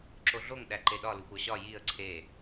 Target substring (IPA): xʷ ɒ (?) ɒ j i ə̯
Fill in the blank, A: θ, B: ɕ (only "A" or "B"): B